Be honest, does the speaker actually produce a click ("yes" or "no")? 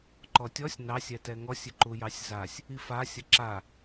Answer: yes